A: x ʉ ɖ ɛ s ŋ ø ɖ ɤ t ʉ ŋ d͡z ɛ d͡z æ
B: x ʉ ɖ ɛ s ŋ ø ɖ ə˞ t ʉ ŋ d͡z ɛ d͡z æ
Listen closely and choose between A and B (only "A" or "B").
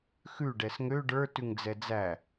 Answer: B